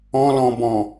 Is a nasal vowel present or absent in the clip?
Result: present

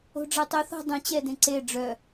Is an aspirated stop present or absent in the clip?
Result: absent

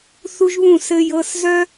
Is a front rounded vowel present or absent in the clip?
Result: present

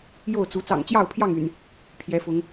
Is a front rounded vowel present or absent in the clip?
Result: present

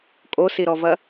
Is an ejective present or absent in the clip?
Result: present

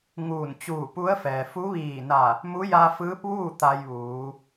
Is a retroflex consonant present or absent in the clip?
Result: absent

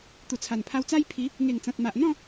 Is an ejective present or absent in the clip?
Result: absent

